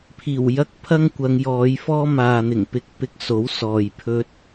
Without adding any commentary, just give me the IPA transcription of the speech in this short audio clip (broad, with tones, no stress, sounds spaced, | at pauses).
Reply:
pʰ iː˨˩ w j ɐ˥ k̚ pʰ ɐ˥ ŋ kʷ ɐ˨˧ ŋ j ɔː˨˧ j f ɔː˥ m aː˨ n̪ ɪ˨˩ ŋ p ɪ˧ k̚ p ɪ˧ k̚ s o˨˥ w s ɔː˨ j pʰ ɵ˥ t̚